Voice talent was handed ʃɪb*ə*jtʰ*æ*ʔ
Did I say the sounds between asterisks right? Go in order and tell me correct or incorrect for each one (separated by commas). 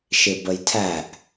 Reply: correct, correct